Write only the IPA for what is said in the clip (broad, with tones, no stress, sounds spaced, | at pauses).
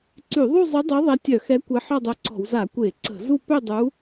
ǀ y˧˩˧ ðˤ u˥˧ zˤ y˧˥ dˤ œ˧˥ ðˤ ɛ˧˥ tʲ œ˧˩˧ x ɛ˧˥ kʷ e˧˥ ħ ɔ˥˧ dˤ œ˧˥ ǀ ɔ̤˧˩˧ w z a˧˩˧ kʷ e˧˩˧ ǀ ə̤˧˩˧ z u˥˧ p ø˥˧ dˤ u˧˥